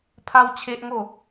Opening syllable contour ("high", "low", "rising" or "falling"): high